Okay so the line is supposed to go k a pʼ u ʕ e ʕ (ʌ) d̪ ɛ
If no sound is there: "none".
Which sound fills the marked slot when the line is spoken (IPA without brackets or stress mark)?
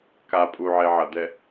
ʌ